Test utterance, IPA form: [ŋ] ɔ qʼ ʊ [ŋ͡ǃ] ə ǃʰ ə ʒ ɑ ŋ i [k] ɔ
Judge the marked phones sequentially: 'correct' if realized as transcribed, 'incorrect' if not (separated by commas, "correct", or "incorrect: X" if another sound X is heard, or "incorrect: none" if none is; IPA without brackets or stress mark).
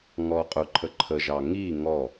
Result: correct, incorrect: ǃʰ, incorrect: ŋ